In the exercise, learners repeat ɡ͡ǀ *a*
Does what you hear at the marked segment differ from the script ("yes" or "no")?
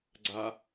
no